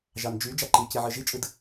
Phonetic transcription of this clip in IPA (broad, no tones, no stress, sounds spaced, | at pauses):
ʒ ɑ n d͡ʒ y d͡ʒ ɑ ǃ i c i ʕ ɯ ʒ i t͡ʃʼ ɯ d